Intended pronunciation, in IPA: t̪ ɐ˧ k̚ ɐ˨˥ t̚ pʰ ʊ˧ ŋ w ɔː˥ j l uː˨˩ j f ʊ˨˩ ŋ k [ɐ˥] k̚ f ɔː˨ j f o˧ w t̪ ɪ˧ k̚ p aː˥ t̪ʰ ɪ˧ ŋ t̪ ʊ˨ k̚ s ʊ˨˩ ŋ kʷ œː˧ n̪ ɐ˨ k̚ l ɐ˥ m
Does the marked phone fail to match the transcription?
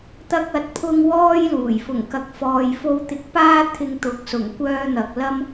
yes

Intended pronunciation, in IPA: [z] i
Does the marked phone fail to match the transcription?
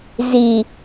no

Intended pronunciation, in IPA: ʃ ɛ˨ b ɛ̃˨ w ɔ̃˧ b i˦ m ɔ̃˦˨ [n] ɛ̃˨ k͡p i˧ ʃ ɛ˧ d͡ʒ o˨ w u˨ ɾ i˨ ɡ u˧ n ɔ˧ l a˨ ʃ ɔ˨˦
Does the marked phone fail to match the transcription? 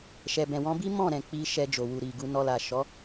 yes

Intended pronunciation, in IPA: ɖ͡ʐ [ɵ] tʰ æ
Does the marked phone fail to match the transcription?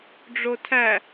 yes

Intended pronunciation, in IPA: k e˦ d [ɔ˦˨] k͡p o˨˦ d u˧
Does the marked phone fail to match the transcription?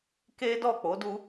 no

